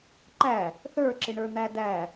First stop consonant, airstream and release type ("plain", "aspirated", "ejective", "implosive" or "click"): click